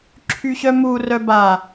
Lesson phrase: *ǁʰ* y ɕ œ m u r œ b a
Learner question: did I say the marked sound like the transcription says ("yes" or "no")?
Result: yes